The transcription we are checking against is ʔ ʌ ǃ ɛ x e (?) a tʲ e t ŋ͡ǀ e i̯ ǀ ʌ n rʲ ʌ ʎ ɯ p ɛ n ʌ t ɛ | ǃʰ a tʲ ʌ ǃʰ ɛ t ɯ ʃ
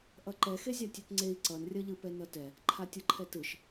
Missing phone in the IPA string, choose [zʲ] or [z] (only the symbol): zʲ